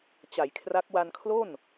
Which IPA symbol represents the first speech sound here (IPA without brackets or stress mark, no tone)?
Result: t͡ɕ